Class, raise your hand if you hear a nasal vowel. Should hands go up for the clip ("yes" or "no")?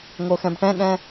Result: yes